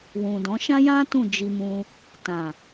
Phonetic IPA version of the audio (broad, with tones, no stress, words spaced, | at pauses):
wũ˨dɔ̃˨˦ ʃã˦jã˦ tũ˦˨d͡ʒi˧mũ˧ | tã˨